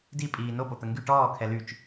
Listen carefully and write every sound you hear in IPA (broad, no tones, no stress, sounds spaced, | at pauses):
d i pʼ iː n o p o t̪ ə ŋ ɡ y ʈ ɔː kʰ ɛ l y t͡ʃ